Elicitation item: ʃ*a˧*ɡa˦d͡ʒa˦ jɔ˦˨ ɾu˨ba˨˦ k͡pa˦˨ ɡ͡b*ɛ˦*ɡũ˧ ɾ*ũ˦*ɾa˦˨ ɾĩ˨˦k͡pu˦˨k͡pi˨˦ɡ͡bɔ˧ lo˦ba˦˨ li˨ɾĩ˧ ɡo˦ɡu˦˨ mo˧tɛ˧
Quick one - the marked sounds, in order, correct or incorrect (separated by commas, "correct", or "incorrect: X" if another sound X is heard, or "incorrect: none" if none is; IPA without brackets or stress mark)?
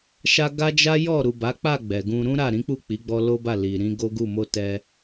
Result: correct, incorrect: ɛ˨, correct